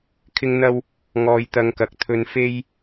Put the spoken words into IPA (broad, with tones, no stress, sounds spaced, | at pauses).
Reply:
kʰ ɪ˧ ŋ n̪ ɐ˧ w | ŋ ɔː˧ j t̪ ɐ˧ ŋ k ɐ˨ k̚ t̪ʰ ɵ˧ n f e˥ j